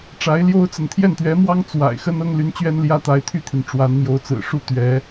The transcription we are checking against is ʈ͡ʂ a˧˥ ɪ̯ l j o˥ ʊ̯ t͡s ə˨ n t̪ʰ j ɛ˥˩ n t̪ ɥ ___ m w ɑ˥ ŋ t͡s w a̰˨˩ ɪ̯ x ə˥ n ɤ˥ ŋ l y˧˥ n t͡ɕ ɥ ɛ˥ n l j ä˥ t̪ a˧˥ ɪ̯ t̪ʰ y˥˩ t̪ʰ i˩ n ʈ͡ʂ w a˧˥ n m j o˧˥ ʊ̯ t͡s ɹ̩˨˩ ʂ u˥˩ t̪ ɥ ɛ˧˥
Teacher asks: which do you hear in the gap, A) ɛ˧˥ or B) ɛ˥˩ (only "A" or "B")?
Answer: A